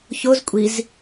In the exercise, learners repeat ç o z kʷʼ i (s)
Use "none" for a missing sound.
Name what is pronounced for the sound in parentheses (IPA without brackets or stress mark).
z